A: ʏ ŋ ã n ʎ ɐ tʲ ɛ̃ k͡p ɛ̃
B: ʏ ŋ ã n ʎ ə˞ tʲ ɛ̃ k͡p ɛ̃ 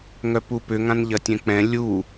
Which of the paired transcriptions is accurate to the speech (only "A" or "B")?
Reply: A